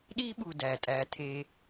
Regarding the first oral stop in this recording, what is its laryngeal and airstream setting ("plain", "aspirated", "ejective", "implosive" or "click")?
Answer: implosive